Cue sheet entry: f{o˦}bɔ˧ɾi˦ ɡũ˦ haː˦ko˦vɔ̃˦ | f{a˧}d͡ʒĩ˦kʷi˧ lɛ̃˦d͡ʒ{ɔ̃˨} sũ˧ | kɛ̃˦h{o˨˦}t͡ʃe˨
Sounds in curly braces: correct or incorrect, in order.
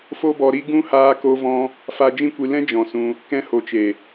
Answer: correct, correct, correct, correct

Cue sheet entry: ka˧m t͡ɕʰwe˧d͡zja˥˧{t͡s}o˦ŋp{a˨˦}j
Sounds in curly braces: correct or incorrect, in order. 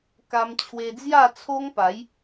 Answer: incorrect, correct

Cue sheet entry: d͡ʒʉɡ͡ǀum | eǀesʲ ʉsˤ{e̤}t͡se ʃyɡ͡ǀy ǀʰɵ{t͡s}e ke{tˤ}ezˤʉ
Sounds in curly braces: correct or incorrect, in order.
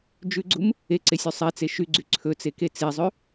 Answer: incorrect, correct, incorrect

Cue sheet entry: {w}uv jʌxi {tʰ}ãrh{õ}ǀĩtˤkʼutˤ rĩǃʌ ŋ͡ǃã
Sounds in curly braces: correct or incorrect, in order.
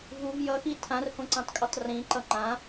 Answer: incorrect, correct, correct

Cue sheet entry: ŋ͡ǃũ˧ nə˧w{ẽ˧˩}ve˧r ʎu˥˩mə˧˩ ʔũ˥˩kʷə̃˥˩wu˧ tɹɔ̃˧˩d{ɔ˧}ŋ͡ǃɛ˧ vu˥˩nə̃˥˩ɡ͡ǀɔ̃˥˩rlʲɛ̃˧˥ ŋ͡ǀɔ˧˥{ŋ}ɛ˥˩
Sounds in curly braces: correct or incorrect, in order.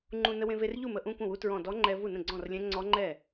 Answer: incorrect, incorrect, incorrect

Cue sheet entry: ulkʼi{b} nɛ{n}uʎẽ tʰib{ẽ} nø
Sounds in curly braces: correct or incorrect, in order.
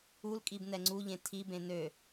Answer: correct, incorrect, correct

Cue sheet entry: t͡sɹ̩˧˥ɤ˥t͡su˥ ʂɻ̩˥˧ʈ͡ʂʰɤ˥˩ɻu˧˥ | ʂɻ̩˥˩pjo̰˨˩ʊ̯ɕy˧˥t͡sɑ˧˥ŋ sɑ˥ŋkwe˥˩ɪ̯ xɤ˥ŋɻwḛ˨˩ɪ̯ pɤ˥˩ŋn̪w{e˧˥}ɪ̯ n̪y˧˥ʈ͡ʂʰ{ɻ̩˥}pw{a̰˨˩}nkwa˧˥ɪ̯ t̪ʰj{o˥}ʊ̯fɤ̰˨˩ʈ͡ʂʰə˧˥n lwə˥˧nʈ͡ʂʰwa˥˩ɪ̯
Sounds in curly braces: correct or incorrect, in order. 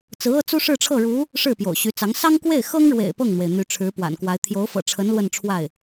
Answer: incorrect, incorrect, correct, incorrect

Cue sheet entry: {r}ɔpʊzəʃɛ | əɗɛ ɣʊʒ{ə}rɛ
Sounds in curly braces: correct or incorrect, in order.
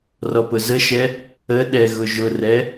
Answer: correct, incorrect

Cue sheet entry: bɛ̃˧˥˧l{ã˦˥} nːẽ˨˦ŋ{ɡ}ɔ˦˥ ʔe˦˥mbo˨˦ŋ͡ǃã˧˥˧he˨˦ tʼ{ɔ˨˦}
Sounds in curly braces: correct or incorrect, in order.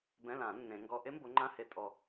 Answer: incorrect, correct, incorrect

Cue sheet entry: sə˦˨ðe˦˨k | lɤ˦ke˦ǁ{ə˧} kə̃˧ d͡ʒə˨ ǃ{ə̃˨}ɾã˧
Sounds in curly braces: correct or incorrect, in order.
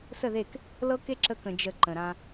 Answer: correct, correct

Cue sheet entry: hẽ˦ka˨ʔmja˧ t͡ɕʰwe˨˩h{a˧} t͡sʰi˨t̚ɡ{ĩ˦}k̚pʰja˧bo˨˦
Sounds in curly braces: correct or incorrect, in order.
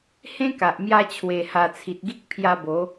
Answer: incorrect, incorrect

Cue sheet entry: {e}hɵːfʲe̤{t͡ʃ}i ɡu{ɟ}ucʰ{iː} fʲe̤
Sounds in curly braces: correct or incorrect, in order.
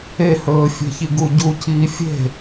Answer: correct, incorrect, correct, correct

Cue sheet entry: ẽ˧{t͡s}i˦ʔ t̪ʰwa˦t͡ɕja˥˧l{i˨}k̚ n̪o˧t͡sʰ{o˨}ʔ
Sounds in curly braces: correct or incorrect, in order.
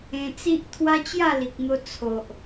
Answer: correct, correct, correct

